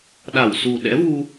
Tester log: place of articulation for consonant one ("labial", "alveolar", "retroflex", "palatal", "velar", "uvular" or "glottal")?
alveolar